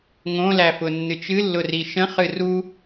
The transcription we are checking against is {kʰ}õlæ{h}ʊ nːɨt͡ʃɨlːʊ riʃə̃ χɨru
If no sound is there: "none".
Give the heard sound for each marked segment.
ŋ, f

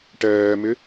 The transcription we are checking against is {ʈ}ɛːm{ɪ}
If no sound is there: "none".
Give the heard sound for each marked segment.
ʈ, ɪ

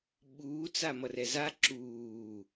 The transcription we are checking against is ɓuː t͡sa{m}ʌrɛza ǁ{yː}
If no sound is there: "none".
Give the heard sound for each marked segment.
m, uː

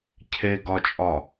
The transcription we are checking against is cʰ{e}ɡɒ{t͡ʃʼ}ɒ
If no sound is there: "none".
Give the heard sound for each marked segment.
e, t͡ʃʼ

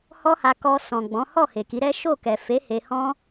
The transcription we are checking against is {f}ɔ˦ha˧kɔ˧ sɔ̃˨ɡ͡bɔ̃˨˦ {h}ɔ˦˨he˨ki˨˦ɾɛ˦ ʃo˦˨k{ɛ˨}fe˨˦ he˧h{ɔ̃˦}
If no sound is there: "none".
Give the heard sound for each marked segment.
h, h, ɛ˨, ɔ̃˦

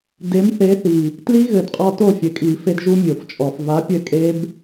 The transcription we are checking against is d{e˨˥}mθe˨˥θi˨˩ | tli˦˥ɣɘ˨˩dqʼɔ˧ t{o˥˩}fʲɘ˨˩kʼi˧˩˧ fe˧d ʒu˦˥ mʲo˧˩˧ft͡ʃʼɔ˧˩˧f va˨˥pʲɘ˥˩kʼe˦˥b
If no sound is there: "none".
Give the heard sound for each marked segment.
e˨˥, o˥˩

